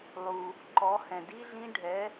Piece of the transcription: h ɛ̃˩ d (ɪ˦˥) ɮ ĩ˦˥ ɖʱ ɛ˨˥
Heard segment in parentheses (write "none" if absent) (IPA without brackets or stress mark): i˦˥